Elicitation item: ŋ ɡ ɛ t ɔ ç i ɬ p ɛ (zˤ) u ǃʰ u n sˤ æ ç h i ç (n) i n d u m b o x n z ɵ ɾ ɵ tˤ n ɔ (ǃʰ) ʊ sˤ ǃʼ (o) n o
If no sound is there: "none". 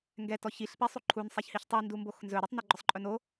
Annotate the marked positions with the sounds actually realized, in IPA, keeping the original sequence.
sˤ, tˤ, ɡ͡ǃ, ɵ

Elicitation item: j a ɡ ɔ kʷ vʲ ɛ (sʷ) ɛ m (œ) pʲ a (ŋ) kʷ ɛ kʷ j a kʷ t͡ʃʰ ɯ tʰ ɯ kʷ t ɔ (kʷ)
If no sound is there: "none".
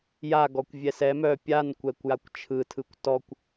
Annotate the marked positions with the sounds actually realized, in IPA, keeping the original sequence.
s, œ, n, kʷ

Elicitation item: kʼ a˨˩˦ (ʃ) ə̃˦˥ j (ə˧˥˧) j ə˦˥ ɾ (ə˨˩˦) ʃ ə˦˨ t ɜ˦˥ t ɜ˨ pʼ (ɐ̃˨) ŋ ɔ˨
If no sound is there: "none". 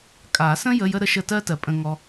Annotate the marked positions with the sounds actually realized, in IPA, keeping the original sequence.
s, ə˧˥˧, ə˧˥˧, ə̃˨

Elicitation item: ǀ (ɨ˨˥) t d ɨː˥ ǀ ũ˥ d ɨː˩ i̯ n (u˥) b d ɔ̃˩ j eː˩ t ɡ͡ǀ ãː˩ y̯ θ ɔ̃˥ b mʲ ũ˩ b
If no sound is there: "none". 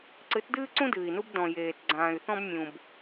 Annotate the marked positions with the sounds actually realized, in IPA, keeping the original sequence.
ɨ˨˥, u˥

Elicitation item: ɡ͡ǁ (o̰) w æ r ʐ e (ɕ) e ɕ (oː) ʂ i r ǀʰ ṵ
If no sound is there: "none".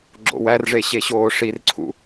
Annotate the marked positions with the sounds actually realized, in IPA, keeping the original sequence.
o̰, ɕ, oː

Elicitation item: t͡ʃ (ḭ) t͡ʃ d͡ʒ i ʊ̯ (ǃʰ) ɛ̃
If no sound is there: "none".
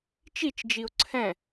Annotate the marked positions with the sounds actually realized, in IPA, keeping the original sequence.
i, ǀʰ

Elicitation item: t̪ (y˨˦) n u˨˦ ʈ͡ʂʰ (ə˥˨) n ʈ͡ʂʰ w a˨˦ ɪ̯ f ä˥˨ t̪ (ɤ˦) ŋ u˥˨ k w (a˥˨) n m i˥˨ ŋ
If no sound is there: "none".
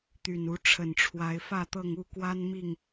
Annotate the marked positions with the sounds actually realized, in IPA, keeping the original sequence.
y˨˩, ə˨˩, ɤ˥˨, a˦

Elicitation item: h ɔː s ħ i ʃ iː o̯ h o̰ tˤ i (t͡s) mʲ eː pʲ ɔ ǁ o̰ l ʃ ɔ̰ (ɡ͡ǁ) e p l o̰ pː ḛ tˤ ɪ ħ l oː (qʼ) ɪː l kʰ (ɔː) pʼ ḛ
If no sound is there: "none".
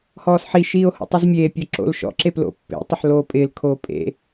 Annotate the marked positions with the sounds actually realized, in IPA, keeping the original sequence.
z, ǁ, pʼ, oː

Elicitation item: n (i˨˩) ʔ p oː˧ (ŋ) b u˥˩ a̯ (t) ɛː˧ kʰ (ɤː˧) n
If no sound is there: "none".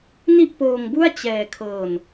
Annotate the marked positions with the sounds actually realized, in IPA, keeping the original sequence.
i˥˩, ŋ, t͡ɕ, ɤː˧

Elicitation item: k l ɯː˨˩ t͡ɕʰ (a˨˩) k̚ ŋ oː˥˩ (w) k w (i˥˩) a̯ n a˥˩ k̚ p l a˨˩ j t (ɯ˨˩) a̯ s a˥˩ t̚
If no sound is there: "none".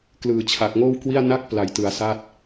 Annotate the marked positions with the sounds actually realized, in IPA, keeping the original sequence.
a˨˩, w, i˥˩, ɯ˩˦

